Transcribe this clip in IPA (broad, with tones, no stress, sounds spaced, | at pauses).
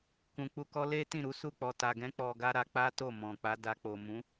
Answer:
k ũ˨ k͡p u˧ k ɔ˦ l e˦ t ĩ˦˨ ɾ u˨˦ s u˦˨ k͡p ɔ˨ t a˨ ɡ ɛ̃˨˦ k͡p ɔ˧ ɡ a˦ ɾ a˧ k͡p a˦ t o˦˨ m ɔ̃˨ k͡p a˨˦ d a˧ k͡p o˨ m ũ˨˦